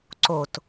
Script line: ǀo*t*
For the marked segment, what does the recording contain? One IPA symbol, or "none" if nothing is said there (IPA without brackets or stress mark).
t